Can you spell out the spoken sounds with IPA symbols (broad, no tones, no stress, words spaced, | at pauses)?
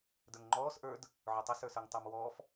də˞ŋŋ͡ǃɔːs ʔə˞d | ʕʊtˤɪ sə˞sə˞ŋtˤʊːmwɔːf